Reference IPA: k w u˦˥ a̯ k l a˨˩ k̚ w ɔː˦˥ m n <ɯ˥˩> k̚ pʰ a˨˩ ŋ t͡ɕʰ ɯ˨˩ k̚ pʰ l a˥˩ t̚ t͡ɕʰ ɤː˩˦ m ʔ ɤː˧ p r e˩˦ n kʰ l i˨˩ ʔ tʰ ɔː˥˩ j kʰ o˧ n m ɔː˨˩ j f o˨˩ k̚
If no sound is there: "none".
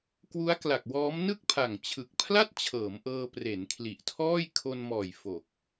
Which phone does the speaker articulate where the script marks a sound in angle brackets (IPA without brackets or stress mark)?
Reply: ɯ˥˩